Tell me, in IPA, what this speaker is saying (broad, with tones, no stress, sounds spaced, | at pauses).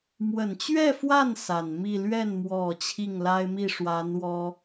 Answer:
m w ə˨˩ n t͡ɕ ɥ ɛ˥˧ f w a˥˩ n s a˨˩ n m i˥˧ l ɥ ɛ˥˩ n m w ɔ˨˩ t͡ɕʰ i˥˩ ŋ l a˥ ɪ̯ m i˥˩ ʂ w a˧˥ n w ɔ˥